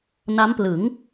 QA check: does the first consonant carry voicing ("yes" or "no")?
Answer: yes